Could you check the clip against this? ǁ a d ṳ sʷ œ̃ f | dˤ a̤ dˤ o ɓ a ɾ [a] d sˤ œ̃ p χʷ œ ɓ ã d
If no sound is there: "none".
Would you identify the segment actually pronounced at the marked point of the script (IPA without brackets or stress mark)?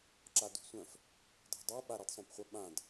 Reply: a